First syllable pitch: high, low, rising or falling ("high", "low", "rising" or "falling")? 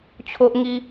high